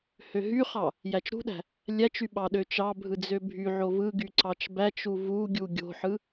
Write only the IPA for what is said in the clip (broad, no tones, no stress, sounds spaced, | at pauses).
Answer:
h ø ɦ y χ ɑ | j æ t͡ʃ ɾ ṳ ɗ æ̤ | lʲ æ t͡ʃ y ɓ ɑ ɗ ø t͡ʃ ɑ bʱ ɯ d͡z ø bʱ y ʕ o v ɯ ɡ y ǀ ɑ t͡ʃ b æ t͡ʃ u v u ɡʲ u ɡʲ o̤ ħ ɯ